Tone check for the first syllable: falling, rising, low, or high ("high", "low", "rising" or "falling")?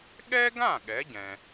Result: high